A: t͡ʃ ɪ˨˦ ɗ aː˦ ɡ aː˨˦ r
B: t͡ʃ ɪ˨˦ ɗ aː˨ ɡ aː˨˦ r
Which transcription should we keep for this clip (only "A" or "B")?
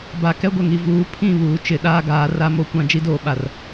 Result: A